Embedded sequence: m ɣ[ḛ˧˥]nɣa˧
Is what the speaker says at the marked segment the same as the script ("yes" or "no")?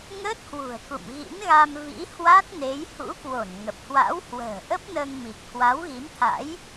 no